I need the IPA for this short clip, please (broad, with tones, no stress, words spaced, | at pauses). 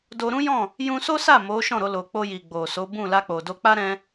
do˧ɾũ˦jɔ̃˦˨ | jũ˧so˦sa˦˨ mo˨˦ʃɔ̃˦˨ɾo˧ lo˨k͡po˧ ji˨ɡ͡bo˨ so˨˦bũ˦˨ la˧k͡po˨do˧k͡pa˦ ɾɛ̃˧